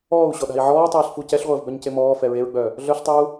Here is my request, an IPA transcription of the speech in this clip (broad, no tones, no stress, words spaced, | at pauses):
ɔːu̯ɕɔɗa̤i̯ ʕɔːtˤiːɬfu cɛɬʁʷəːvbœɲce mɔːfɛ ɹeɹɡ͡bœ | ɮœɬtˤeu̯